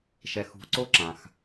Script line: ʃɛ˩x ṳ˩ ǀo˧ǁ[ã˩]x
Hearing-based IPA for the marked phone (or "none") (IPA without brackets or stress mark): ã˩